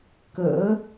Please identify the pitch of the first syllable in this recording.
rising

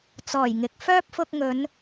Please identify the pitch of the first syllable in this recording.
low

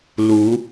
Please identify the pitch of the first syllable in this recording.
rising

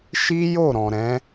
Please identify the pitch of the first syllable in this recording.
high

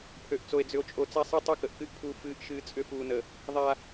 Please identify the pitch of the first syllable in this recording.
low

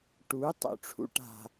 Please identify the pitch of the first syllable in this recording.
rising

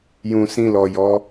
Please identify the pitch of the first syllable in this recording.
low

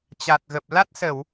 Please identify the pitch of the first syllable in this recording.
low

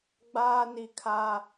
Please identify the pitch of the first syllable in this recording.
high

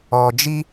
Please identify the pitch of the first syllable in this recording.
low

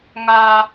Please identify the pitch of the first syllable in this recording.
high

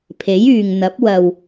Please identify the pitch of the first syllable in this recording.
rising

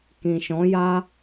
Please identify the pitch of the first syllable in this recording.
low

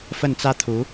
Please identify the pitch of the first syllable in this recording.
falling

